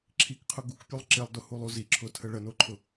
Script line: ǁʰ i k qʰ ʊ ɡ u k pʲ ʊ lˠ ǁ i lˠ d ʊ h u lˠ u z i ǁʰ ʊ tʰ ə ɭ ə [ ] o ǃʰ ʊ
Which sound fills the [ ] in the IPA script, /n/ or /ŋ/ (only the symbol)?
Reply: n